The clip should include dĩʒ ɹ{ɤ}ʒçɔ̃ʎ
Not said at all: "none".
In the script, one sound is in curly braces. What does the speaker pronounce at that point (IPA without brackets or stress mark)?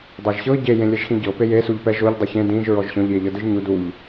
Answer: ɔ